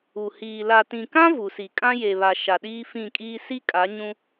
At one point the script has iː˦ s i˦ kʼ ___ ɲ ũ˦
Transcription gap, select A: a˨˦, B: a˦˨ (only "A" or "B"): A